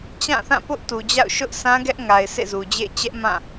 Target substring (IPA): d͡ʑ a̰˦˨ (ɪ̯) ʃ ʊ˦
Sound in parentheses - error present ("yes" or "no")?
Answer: yes